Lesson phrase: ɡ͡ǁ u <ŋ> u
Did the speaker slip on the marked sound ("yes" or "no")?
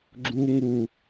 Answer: no